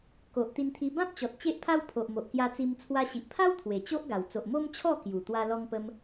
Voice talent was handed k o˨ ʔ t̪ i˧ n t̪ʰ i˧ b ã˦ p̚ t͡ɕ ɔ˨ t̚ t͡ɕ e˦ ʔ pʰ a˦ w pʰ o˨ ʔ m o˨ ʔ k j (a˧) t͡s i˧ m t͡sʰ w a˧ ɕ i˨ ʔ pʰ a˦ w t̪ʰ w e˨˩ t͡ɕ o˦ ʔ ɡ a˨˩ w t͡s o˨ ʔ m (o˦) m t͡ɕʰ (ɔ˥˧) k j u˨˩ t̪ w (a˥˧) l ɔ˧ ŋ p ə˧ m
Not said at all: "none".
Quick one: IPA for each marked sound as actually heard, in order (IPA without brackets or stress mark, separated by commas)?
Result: a˧, o˦, ɔ˥˧, a˧